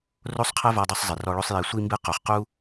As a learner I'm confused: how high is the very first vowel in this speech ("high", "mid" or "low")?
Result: mid